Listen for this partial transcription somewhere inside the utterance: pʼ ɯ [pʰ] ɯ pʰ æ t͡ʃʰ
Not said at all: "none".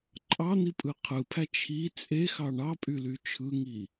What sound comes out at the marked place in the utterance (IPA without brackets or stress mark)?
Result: qʰ